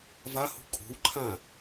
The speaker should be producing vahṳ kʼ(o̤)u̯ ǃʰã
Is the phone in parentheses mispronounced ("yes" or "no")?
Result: no